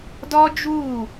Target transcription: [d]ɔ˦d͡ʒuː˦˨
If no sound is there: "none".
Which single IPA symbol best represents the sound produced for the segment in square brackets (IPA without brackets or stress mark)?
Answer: d